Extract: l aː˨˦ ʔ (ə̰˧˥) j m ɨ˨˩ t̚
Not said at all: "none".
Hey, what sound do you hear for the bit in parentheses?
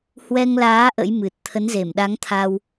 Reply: ə̰˧˥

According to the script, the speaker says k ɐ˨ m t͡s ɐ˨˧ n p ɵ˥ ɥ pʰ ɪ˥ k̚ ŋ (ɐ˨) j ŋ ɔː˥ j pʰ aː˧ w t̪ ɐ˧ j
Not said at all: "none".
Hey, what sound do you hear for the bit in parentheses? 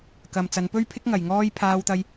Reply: ɐ˨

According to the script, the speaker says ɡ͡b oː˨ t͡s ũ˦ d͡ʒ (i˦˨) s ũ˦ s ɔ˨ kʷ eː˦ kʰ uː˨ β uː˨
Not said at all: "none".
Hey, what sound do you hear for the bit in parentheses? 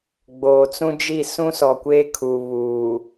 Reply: i˦˨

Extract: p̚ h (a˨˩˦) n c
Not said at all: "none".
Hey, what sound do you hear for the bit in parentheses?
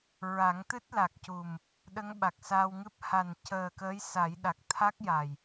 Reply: a˨˩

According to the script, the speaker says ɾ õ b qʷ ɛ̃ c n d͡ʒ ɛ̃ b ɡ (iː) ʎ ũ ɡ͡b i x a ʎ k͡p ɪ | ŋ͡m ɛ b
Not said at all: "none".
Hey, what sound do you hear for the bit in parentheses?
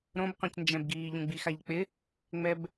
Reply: iː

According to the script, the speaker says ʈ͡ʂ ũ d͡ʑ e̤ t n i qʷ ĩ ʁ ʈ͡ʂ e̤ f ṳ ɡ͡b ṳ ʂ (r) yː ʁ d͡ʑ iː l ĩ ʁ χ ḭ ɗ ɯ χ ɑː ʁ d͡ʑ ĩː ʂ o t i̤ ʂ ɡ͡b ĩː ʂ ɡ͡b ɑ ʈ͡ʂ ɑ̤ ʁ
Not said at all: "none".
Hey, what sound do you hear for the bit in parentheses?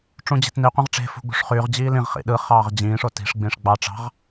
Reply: χ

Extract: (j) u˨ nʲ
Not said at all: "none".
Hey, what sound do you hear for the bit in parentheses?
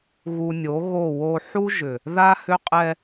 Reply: ɣ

